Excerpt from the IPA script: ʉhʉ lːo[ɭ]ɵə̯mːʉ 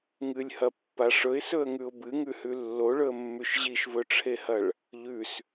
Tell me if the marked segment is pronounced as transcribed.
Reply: yes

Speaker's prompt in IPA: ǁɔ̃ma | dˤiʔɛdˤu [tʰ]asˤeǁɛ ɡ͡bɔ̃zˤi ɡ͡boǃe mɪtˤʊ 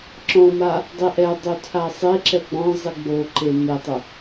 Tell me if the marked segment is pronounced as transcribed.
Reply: yes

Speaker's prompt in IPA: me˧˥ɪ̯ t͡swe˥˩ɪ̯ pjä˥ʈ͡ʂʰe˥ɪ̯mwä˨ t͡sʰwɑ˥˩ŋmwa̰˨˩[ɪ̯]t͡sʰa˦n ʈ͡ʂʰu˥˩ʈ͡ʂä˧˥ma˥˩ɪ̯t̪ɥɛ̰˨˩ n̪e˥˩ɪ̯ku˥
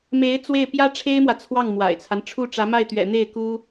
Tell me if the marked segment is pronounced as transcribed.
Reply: yes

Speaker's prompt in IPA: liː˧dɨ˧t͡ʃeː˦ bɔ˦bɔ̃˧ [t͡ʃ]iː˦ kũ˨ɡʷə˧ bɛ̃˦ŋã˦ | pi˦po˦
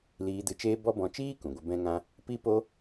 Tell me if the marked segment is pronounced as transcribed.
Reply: yes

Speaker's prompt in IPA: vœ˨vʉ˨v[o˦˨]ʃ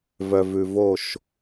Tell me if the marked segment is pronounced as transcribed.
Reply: yes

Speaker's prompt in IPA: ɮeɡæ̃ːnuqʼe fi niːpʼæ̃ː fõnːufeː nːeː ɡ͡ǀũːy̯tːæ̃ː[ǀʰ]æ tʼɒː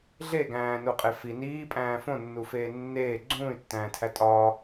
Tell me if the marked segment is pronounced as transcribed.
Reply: no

